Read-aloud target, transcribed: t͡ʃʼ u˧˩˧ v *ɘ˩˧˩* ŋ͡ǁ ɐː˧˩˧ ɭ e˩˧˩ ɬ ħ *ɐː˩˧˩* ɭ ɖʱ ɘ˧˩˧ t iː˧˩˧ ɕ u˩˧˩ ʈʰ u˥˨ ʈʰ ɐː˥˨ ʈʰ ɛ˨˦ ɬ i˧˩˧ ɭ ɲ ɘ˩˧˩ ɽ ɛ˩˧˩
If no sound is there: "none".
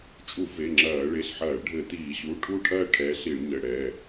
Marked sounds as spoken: e˩˧˩, ɐː˧˩˧

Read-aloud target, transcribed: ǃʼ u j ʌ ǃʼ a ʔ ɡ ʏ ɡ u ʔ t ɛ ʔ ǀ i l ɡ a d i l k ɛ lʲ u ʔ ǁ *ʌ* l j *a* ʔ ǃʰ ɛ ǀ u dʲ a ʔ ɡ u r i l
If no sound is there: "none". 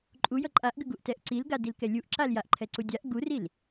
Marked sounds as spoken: a, a

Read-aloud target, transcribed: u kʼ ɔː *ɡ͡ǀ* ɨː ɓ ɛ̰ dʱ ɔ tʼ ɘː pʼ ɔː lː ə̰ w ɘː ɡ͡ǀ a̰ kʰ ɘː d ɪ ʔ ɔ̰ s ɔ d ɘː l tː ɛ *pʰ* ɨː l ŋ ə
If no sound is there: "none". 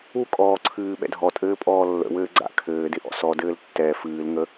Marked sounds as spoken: ǀʰ, f

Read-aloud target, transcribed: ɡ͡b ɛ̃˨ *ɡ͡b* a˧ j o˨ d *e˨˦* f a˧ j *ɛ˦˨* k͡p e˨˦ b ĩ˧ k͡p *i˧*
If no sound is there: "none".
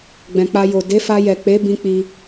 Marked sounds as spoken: k͡p, e˨˦, ɛ˨, i˧

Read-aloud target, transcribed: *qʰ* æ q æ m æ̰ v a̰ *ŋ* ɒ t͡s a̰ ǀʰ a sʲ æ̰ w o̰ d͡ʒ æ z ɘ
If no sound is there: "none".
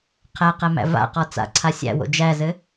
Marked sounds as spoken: qʰ, q

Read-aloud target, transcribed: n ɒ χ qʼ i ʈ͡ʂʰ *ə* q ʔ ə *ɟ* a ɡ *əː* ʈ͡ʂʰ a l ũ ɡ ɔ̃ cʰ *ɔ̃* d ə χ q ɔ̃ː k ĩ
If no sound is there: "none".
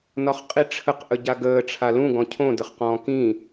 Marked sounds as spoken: ə, ɟ, əː, õ

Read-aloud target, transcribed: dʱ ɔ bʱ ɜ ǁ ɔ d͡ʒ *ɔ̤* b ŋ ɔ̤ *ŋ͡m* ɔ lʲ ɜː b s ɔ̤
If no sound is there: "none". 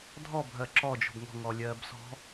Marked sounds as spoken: ɔ̤, ŋ

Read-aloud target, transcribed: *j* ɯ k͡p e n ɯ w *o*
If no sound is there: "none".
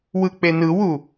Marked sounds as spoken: w, u

